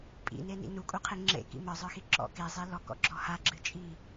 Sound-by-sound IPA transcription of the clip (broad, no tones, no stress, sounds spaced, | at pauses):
pʼ ḭ n e n ḭ n u kʼ u qʰ e ŋ͡ǁ ḛ k ḭ m ə˞ zˤ ə˞ x i ǁ ɔ̰ k e zˤ i l ɔ k ɔ̰ ɡ͡ǁ ɔ h a ɡ͡ǁ ɨ t͡ʃʼ i